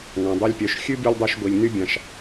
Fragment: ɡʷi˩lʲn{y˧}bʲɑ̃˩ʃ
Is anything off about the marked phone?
yes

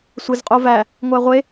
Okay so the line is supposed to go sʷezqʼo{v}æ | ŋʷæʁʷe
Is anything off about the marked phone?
no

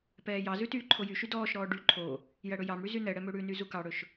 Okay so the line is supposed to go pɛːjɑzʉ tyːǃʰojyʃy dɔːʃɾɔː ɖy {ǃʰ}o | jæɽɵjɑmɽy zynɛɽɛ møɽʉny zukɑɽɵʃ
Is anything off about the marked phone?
no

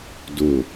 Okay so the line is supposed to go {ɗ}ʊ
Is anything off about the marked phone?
yes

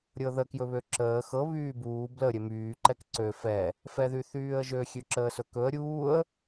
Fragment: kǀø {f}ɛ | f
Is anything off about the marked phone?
no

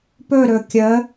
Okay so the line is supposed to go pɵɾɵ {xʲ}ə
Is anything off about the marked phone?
yes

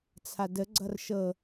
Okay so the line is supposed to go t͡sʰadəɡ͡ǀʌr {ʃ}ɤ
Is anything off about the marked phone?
no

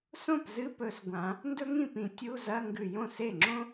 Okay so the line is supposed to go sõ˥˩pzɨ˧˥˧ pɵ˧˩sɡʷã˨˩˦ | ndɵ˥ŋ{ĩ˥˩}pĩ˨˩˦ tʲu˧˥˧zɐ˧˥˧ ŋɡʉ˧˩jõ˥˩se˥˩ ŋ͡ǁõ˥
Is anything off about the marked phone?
no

